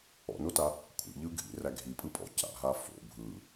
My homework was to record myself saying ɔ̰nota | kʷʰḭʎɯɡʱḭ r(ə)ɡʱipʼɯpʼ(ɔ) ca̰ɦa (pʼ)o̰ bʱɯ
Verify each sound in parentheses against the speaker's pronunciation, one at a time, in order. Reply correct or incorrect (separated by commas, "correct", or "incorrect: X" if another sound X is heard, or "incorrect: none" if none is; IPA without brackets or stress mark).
incorrect: æ, incorrect: ɔ̰, incorrect: f